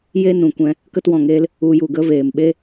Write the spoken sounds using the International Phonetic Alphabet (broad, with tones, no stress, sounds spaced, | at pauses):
j e˦ n ũ˨ kʷ ɛ̃˧ | k ə˦ t w ɔ̃˨ ŋ eː˦ l | u˧ j u˨ ɡ ə˦ v eː˨ m ɓ e˦